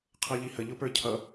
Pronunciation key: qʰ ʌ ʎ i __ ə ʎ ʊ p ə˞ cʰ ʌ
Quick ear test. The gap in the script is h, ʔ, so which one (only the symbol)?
h